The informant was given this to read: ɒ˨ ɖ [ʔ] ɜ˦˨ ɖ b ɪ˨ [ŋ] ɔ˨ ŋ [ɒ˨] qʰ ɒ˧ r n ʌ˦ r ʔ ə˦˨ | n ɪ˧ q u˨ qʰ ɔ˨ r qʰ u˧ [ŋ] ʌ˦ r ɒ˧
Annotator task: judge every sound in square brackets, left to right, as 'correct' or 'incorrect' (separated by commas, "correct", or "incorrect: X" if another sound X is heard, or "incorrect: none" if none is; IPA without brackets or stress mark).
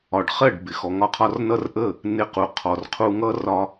incorrect: χ, incorrect: x, incorrect: ɒ˧, correct